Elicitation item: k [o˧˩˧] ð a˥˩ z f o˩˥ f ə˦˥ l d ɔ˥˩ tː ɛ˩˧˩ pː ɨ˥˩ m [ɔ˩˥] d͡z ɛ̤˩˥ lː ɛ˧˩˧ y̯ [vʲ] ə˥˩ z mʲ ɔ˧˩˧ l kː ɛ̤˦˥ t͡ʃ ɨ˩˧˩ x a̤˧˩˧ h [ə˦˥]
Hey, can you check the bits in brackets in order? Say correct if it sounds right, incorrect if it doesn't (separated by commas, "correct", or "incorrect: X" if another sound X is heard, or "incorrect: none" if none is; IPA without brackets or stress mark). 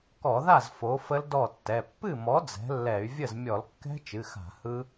incorrect: ɔ˧˩˧, correct, correct, incorrect: ɯ˦˥